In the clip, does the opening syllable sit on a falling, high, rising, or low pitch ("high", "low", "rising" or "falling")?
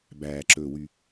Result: low